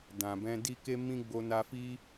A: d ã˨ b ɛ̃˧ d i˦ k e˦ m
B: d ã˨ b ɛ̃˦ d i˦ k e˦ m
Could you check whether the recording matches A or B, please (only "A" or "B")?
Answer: A